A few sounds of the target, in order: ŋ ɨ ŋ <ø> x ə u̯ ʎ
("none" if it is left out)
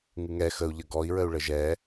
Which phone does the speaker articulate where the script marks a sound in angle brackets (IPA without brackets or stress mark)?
ɛ